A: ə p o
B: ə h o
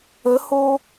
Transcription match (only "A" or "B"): B